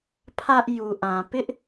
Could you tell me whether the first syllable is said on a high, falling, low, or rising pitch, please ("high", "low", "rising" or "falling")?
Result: high